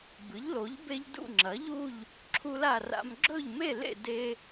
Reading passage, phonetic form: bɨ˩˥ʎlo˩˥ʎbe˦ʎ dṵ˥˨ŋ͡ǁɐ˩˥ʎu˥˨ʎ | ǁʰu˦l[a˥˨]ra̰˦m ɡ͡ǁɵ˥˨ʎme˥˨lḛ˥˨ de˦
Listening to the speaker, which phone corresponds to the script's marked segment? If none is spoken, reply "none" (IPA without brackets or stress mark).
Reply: a˥˨